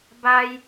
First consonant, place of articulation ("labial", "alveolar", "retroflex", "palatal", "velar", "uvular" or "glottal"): labial